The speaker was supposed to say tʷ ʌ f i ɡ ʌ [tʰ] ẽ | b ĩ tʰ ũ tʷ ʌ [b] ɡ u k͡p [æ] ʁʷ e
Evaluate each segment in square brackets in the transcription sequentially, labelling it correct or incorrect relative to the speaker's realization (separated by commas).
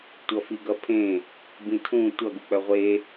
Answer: incorrect, incorrect, incorrect